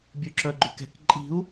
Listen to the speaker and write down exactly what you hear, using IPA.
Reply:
bʲ ʉ ǁ œ ɡ͡ǃ ʉ k ɛ̤ k ǃʼ i̤ u̯

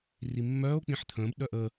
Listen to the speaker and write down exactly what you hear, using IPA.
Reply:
r i mː œː o̯ k͡p ĩ ħ t̪ʰ ə̃ː b ɗ œ ʔ ə

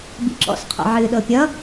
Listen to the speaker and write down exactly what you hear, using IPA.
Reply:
b ḭ ǁ ɔ̰ s qʰ ɔ̰ ʕ ɨː ɗ ɤ pʲ ʌ

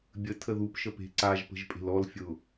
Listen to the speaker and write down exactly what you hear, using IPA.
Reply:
bʲ ə tʰ ə ð u p ʃ ə p e̤ ǀ a ʒ p ə̤ ʒ pʼ e̤ l ɔ l fʲ ʊ

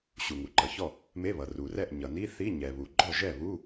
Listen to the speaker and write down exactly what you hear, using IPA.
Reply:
ɕ u˩ ŋ u˩ ǃ ʌ˩ ç ɔ˥˩ | m e˧˥˧ β ʌ˩ r u˩ r ɛ˥˩ ʔ ɲ ʌ˩ n i˧˥˧ θ i˧˥˧ ɲ ɛ˩ β u˩ ɡ͡ǃ ɔ˥˩ ʒ ɛ˥˩ β u˧˥˧

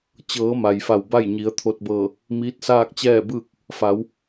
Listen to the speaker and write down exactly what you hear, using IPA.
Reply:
t͡ɕ ɤː˩˧ m a˩ j f a˧˩ w b a˥˨ j ɲ i˩˧ ə̯ t̪ʰ o˧ t̚ b ɤː˧˩ | m iː˧˥ t̚ s aː˥˨ k̚ t͡ɕ ɛː˥˨ b ɯː˥˨ k̚ | f a˩˧ w

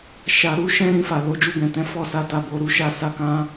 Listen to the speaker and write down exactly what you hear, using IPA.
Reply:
ʃ a˨ ɾ u˨˦ ʃ ɛ̃˦ ɾ ĩ˧ f a˨ l o˨˦ d͡ʒ u˧ ɡ ɛ̃˨ t ɛ̃˨˦ f ɔ˦˨ s a˧ t a˨ b o˨ ɾ u˨˦ ʃ a˦˨ s a˧ k ã˦

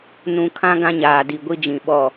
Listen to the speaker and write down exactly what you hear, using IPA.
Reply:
n ũ˨ kʰ ã˦ ɡ ã˦ ɲ aː˨ d i˨ ɡʷ i˦ d͡ʒ ĩ˨ ɓ ɔ˦˨

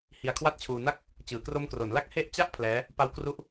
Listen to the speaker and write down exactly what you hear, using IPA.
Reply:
h i˧ a̯ kʰ w a˥˩ t̚ t͡ɕʰ uː˧ n a˥˩ k̚ | t͡ɕ ɯː˩˦ k r o˧ m k r o˩˦ n l a˥˩ k̚ h e˥˩ ʔ t͡ɕ a˥˩ ʔ pʰ l ɛː˦˥ | p a˦˥ w k r u˦˥ ʔ

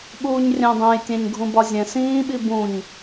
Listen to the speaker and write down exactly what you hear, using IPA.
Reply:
ɓ uː ɲ rʲ æ̃ dˤ æ̃ j tʲ æ̃ ɲ ɡʱ ũ b ɒ zʲ ɛ̃ s ĩː ɓ i b ũ ɲ

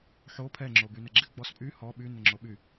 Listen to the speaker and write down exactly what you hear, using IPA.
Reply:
ħ o pʰ ɛ ŋ͡ǁ o b y n ɛ ɡ͡ǁ ɪ ɡ͡b ɔ s pʼ y h ɔ ɓ y n ɪ ŋ͡ǁ o ɓ y

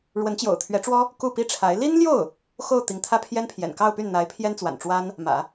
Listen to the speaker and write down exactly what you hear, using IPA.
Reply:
ɻ w ə˧˥ n t͡ɕ j o̰˨˩ ʊ̯ t̪ʰ ɥ ɛ˧˥ ʈ͡ʂ w ɔ˥ | k u˥˩ p i˥ ʈ͡ʂʰ a˧˥ ɪ̯ l i˥ n l j o˥˩ ʊ̯ | x o˥˩ ʊ̯ t̪ i˧˥ ŋ t̪ʰ ä˥ pʰ j ɛ˥ n pʰ j ɛ̰˨˩ n k ɑ˥˧ ʊ̯ p y˥˩ n n̪ a˧˥ ɪ̯ pʰ j ɛ˥ n t͡s w a̰˨˩ n ʈ͡ʂ w a˥ n | m ä̰˨˩˦

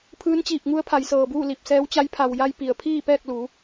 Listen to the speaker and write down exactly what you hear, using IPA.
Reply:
pʰ ɯː˧˥ n t͡ɕ iː˧˩ p̚ ŋ u˧˥ ə̯ pʰ a˩˧ j s ɤː˩ b uː˥˨ l i˧˩ p̚ s ɛː˧˥ w t͡ɕ a˧˥ j pʰ a˩ w j a˧ j p i˩ ə̯ pʰ iː˥˨ p ɛː˥˨ k̚ l u˩˧

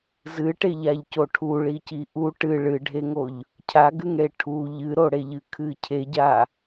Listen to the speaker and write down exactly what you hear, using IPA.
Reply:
z ɨ ʈ e ʎ a ʎ c o ʈʰ u ɭ i c i ʔ u ʈ ɨ ɭ ɨ ɖʱ e ŋ o ʎ | cʰ a ɡ ɨ ŋ ɽ e ʈʰ u ʎ ɨ ɾ o ɽ e ʎ ɨ kʰ ɨ cʰ e ɟ a

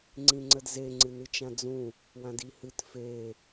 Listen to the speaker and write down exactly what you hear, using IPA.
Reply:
ŋ͡ǀ ĩ ŋ͡ǀ ə d z e ŋ͡ǀ ɨ n ɨ t͡ʃ ã d͡z ũ | w ã d i h ɨ t f e

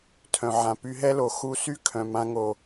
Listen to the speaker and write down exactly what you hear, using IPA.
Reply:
tʰ œ̃˨ ʕ ã˨ p y˧ ɦ ɛ˦ l o˨ x u˧ s y˦ kʰ œ̃˨ m ã˧ ŋ o˨

